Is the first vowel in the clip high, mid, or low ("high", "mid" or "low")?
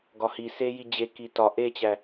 low